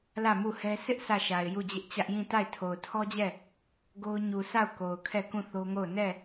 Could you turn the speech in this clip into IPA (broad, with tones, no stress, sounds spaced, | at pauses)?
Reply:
l ä˦˨ m u˦˨ h ɛ˦ sʰ ɪ˦ ʔ sʰ ä˦˨ ʃ a˨ ɪ̯ j u˦˨ d͡ʑ ɪ˦ ʔ t͡ɕ ä˦ ʔ j ĩ˦˨ t a˦˨ ɪ̯ tʰ o˨ ʊ̯ tʰ ɔ˦ d͡ʑ ɛ˦˨ | ɡ o˦ ʊ̯ ɲ u˨ sʰ a˦˨ ʊ̯ k o˨ ʊ̯ kʰ ɛ˦˨ k ũ˦˨ θ o˦ ŋ o˦˨ ʊ̯ n ɛ˦˨